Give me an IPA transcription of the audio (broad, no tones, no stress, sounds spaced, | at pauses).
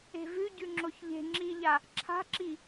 e̤ v ʉ ɟ ʉ ŋ͡ǁ o ç ʎ e̤ ŋ͡ǁ i ʎ a | ǁʰ a̤ ǁ i